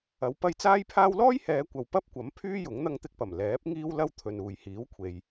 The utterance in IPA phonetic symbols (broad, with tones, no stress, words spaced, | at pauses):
ɐ˨˥wpɐ˧jt͡saː˥jpʰaː˥w lɔː˥jhɛː˨˧kʷɐ˨w pɐ˥p̚kʷɐ˨˥m pʰyː˥jʊ˨˥ŋ n̪ɐ˧ŋt̪ɪ˧k̚pɐ˨˩m lɛː˨˥p̚ ŋiː˥wlɐ˥wt̪ʰɵ˨n uː˨jhiː˨˥wkʷʰe˨j